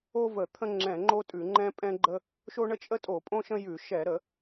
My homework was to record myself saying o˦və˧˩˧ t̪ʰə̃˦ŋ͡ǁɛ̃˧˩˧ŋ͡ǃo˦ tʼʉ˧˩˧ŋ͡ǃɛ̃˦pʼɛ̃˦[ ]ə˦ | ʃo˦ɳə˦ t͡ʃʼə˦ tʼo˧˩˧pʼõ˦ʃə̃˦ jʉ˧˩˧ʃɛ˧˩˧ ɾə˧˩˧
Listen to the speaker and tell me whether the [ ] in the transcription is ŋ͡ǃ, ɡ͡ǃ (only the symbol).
ɡ͡ǃ